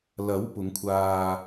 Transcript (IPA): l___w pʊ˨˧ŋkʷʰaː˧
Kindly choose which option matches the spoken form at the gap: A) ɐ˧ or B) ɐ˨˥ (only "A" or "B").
B